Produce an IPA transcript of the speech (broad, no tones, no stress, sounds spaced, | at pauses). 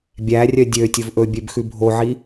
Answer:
bʲ æ rʲ œ dʲ ø tʲ ɵ v ʔ ɵ bʲ ø b x ʉ bʱ o ʕ i